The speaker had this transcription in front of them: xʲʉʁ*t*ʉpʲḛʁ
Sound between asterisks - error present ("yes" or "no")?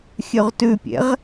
no